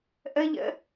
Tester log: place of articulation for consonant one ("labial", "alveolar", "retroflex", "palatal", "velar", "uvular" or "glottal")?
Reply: glottal